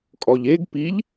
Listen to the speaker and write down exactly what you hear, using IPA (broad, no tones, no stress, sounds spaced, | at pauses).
kʼ ɔ ʎ e ɡ p i ʎ